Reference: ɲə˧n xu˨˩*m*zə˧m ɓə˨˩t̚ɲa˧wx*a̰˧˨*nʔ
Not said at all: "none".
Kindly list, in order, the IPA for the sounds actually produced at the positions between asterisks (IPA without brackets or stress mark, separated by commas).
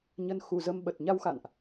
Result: none, a̰˧˨